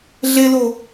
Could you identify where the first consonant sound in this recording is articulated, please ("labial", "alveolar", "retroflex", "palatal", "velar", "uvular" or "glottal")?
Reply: alveolar